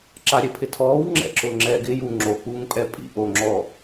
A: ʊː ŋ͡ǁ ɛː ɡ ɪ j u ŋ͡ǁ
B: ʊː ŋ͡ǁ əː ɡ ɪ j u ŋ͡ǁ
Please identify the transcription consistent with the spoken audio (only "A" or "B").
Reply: A